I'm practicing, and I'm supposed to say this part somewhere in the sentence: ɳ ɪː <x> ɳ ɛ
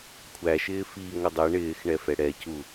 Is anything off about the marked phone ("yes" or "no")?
no